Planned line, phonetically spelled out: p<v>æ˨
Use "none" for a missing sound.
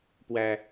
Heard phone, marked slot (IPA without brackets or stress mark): w